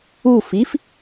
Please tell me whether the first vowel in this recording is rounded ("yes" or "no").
yes